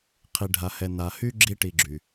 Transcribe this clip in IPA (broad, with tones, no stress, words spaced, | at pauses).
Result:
qʰi˨ ɖʱa˨hɛ˨ na˨hy˥ɡ͡ǁi˦ ʈi˨ɡ͡ǁy˩